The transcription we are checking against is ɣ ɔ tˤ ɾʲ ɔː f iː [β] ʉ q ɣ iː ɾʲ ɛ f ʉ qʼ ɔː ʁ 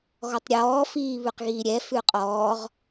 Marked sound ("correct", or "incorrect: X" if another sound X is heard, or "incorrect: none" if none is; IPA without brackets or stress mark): correct